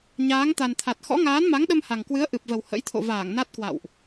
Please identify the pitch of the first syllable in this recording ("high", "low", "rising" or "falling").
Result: rising